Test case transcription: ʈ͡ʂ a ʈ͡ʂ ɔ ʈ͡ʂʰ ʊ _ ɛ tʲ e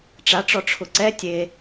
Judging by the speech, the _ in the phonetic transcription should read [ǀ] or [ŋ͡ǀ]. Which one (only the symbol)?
ǀ